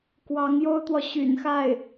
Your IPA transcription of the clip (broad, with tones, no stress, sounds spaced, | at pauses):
k w ɑ˧˥ ŋ j o˥ ʊ̯ t̪ w ɔ˨ ɕ y̰˨˩ n x a˥˩ ɪ̯